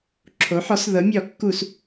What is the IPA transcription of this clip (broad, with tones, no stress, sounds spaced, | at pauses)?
ǁʰ o˩˥ ħ ɔ˩˥ s ð ɤ˩˥ mʲ ɔ˧˩˧ kː u˧˩˧ s